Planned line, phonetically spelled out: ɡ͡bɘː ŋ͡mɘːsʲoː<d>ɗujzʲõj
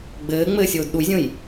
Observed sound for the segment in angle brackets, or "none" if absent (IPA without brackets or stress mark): d